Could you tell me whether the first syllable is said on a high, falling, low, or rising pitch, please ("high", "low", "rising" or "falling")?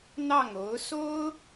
falling